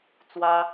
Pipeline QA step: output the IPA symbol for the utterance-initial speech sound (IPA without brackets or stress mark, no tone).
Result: t͡s